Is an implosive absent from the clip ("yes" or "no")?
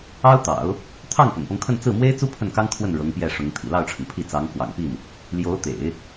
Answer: yes